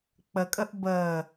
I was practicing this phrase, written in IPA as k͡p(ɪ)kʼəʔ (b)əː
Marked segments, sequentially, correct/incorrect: incorrect, correct

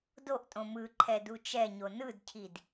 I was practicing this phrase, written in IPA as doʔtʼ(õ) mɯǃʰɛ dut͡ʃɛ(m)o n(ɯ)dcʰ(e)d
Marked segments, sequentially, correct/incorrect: correct, incorrect, correct, incorrect

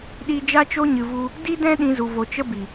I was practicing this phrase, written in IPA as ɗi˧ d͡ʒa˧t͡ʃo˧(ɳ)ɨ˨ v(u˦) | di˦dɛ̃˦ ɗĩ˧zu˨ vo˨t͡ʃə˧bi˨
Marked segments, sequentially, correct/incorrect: incorrect, incorrect

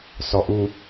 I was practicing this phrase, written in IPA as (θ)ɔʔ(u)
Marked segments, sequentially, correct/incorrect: incorrect, correct

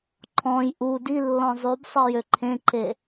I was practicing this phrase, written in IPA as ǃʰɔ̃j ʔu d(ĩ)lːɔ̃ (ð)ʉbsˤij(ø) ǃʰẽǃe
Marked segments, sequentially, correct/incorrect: incorrect, incorrect, correct

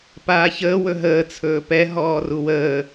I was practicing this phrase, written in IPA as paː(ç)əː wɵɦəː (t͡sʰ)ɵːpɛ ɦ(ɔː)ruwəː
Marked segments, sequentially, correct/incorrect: correct, correct, correct

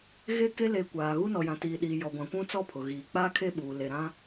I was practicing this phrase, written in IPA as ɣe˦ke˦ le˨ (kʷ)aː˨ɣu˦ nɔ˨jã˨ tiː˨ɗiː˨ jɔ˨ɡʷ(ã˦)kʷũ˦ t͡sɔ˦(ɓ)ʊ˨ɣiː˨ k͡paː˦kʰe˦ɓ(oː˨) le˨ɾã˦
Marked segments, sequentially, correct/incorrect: correct, incorrect, incorrect, incorrect

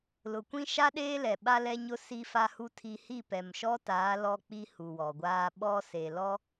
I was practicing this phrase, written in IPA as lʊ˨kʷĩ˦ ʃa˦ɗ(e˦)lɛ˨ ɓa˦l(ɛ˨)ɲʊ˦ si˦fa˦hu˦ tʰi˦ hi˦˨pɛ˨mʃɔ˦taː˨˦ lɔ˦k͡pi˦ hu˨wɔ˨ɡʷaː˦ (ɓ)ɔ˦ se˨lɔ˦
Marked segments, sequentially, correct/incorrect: incorrect, incorrect, correct

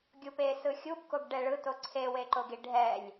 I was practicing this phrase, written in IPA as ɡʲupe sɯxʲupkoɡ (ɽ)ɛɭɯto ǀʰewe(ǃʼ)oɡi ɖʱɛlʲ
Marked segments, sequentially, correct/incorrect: incorrect, incorrect

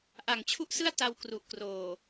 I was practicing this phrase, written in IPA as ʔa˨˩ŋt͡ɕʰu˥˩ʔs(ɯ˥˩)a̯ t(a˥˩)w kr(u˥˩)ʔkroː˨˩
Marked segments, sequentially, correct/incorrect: correct, incorrect, incorrect

